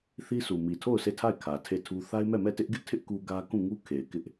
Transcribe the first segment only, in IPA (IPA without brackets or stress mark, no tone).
θ